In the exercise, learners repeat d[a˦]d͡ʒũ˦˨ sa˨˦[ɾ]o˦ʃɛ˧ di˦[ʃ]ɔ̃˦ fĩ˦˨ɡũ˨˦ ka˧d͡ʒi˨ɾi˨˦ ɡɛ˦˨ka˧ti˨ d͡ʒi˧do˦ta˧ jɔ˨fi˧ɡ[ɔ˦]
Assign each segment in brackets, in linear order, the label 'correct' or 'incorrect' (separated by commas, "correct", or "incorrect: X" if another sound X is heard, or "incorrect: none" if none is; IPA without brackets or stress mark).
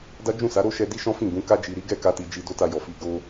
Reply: correct, correct, correct, incorrect: o˦